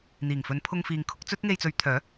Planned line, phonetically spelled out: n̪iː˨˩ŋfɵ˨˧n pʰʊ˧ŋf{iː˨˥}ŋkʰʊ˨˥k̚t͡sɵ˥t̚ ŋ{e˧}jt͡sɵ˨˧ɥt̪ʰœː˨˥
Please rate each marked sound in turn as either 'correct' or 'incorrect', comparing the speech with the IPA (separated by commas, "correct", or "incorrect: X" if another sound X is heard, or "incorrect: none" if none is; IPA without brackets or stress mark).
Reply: incorrect: iː˨, correct